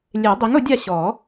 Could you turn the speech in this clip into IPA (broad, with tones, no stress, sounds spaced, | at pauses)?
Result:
lʲ e˨˩˦ dˤ i˩˥ ŋ ʊ˨˩˦ dʲ a˦˨ ɕ ɔ˨˩˦